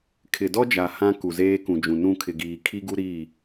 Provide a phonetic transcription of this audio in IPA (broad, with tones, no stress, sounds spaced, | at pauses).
kʰ ɪ˨ d ɔ˦ d͡ʒ a˨ h ã˦ k u˨ z eː˦ k ũ˨ d͡ʒ ũ˨ n ũ˦˨ kʰ ɪ˨ ɡ iː˨ kʰ i˦ ɡ u˦ ɾ iː˦˨